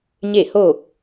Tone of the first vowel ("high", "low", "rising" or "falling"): falling